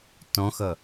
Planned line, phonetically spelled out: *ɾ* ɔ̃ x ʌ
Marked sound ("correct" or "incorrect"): incorrect